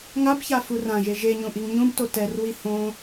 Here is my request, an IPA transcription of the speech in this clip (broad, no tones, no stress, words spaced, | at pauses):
ŋabça furãʒe ʒeɲũʔiŋ ɲũbto tɛrwi hõ